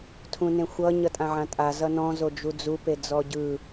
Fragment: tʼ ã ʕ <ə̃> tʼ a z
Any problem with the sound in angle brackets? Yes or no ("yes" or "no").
yes